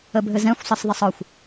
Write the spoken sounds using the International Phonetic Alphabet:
ə bʱ ɘ z ɛ̃ xʷ sˤ ə s ðˤ ə sˤ ɒ xʷ

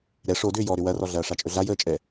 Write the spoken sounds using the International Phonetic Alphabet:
ɾ ɛ ʂ o d ʏː j ɔ ɾ ʏ w ɐ r ɔ ɮ ɐː ʂ a t͡ʃʼ ɵ ɮ a j əː t͡ʃʼ ɛ

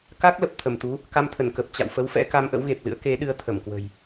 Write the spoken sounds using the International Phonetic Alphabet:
k a˦˥ k̚ l ə˨˩ p̚ t̪ʰ ə˧˩ m t̪ u˨˦ | k a˧ m t̪ʰ ə˧˩ n k ə˨˩ p̚ t͡ɕ a̰˧˨ w f ə˨˦ w f ɛ̰˧˥ k a˧ m ʔ ə̰˧˥ w ɣ e˨˩ p̚ l ɨ̰˧˥ ə̯ k e˨˦ ɗ ɨ˧ ə̯ t̪ʰ ə˧˩ m k w ə̤˨˩ j

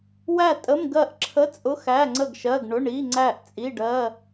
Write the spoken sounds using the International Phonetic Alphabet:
w æ˥˨ tʼ ə˧˥˧ m ɡ ɜ˥˨ ʔ ǁʰ ə˧˥˧ t͡sʼ ʊ˧˥˧ x æ˧˥˧ ŋ͡ǀ ə˥˨ ɡ ʃ ɜ˧˥˧ ɡ ɳ ʊ˧˥˧ ɳ i˧˥˧ ŋ͡ǀ æ˥˨ ʔ t͡sʼ i˧˥˧ ɖ ɜ˧˥˧

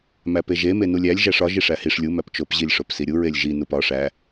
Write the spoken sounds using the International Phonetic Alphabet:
m æ p e ʒ e m e n u lʲ æ lʲ ʒ æ ʂ ɒ ʒ i ʂ æ h i ʂ lʲ u m æ p t͡ʃ o p ʑ i lʲ ʂ o p s i ɾʲ u ɹ e lʲ ʒ i n u p ɒ ʂ æ

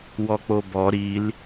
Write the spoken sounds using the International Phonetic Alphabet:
w ɔ k͡p o b ɔ ɾ i l

